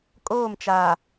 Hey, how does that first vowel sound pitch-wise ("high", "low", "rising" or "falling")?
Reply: falling